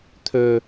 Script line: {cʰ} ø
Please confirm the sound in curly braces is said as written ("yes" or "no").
no